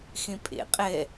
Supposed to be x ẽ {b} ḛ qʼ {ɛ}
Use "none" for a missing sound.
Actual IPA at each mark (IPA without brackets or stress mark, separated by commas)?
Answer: pʼ, ɛ